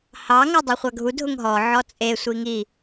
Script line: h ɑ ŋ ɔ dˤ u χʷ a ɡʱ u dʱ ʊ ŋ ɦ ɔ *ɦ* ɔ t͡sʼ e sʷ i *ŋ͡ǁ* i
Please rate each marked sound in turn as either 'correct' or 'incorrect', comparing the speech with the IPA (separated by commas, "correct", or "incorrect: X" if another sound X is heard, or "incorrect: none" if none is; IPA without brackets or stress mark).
incorrect: ʕ, incorrect: ŋ